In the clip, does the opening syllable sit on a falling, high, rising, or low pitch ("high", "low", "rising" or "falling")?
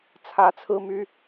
rising